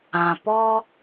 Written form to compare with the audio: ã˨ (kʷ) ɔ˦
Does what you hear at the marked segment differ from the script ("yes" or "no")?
yes